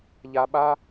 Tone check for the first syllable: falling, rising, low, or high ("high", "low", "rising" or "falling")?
low